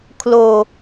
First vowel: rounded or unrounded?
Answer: rounded